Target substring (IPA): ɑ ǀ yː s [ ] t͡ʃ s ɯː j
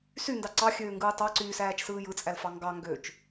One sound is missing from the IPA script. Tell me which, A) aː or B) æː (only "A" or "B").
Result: B